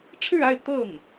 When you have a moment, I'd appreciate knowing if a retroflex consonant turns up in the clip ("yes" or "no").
yes